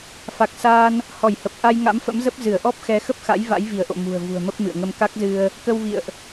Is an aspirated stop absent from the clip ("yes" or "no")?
yes